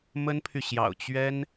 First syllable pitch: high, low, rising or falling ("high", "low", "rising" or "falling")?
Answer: high